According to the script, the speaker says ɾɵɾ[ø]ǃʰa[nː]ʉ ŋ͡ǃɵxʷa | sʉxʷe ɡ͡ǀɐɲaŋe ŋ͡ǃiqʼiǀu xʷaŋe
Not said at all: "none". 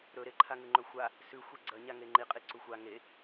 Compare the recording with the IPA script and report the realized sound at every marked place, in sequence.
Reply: e, ŋ

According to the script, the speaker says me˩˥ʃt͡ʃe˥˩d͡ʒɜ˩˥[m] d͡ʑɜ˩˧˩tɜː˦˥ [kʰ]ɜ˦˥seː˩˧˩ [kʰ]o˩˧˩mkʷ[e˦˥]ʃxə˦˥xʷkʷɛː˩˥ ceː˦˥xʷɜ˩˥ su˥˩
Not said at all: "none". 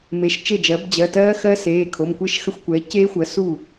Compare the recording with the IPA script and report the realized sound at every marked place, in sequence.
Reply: b, x, kʰ, e˥˩

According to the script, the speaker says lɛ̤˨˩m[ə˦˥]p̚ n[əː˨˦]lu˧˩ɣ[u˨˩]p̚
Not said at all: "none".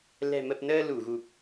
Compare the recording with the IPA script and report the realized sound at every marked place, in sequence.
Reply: ə˨˩, əː˧, u˨˩

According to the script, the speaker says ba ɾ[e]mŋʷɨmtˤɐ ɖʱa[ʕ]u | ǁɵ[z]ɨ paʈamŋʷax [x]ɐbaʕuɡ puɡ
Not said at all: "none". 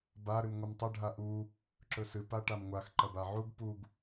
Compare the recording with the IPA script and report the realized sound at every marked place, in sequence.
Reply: ɨ, ʔ, s, ǃ

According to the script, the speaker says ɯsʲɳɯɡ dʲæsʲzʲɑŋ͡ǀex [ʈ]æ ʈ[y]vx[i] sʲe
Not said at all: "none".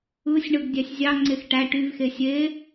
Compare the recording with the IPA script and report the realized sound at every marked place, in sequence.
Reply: ʈ, y, e

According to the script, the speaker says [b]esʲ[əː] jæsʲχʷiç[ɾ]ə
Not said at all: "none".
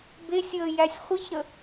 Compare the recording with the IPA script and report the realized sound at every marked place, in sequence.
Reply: b, əː, ɾ

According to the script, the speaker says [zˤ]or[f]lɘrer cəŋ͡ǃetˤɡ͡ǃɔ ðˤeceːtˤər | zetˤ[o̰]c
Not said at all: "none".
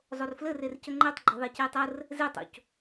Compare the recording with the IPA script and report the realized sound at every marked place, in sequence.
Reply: zˤ, f, o̰

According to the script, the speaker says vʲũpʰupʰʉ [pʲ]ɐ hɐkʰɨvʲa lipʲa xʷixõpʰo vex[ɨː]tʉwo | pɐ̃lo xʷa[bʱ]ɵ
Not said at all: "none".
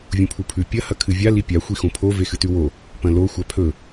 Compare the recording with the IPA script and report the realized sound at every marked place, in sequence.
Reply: pʲ, ɨ, pʰ

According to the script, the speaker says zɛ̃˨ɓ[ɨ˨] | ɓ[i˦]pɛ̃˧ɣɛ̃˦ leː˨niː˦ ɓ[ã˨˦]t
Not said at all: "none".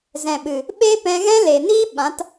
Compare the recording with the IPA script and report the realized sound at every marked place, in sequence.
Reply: ɨ˨, e˦, ã˨˦

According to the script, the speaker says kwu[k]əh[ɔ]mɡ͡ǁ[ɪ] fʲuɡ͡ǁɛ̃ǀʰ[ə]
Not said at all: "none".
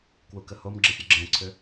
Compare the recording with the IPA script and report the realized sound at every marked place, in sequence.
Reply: k, o, ɪ, ʏ

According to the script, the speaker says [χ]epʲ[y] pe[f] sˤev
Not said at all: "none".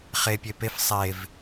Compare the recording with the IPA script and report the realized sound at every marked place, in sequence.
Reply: χ, e, f

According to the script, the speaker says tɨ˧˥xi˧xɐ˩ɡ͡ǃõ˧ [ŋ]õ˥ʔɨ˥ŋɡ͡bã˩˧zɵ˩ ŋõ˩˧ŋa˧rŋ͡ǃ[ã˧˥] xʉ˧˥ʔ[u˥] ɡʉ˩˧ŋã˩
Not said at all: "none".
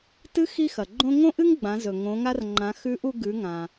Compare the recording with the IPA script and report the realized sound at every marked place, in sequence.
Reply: ŋ, ã˩˧, u˧

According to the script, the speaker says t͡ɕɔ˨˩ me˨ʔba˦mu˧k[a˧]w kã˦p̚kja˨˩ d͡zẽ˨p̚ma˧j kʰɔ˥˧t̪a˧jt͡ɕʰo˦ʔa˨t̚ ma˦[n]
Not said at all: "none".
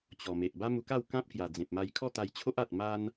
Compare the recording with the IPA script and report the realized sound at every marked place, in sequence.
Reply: a˥˧, n

